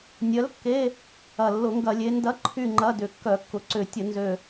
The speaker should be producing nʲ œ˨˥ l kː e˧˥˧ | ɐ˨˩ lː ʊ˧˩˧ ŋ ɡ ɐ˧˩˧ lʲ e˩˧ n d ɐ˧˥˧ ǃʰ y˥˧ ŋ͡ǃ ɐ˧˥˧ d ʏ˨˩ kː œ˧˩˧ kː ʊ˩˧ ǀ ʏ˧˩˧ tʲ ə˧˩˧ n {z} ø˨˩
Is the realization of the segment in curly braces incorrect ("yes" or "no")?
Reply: no